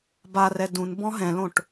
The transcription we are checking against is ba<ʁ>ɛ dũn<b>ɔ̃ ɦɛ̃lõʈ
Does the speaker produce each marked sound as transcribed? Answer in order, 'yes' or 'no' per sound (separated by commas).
no, yes